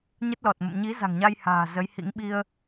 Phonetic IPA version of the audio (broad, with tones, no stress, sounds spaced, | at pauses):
ɲ ə˦˥ t̚ l ɔ˨˩ t̚ m ə̰˧˨ m ɲ i˨˦ z a̤˨˩ ŋ ɲ a˧ j h a̤ː˨˩ z ə˨˦ j h ḭ˧˥ ŋ ɓ i˧ ə̯